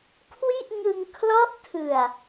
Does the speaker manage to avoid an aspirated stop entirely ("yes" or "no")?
no